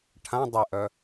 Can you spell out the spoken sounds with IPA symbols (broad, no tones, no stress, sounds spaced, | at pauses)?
ʈʰ ã dˤ ɪ ʔ œ